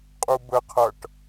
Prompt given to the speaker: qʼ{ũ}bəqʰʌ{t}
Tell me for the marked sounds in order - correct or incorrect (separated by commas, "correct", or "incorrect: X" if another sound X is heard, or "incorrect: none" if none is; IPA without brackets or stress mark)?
incorrect: u, incorrect: ʈ